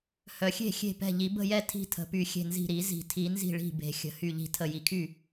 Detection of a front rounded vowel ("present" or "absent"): present